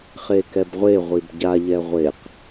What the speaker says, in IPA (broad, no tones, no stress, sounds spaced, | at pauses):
χ e k ɛ b ʁʷ e ʁʷ i b ɟ a ʎ ɛ ʁʷ e q